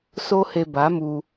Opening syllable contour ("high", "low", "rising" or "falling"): high